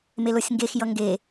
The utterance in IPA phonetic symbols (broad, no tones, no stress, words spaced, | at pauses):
melosʲŋɡex jʌŋɡe